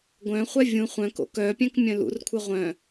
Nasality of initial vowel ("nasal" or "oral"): nasal